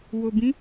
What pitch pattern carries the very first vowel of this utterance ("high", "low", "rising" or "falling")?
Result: low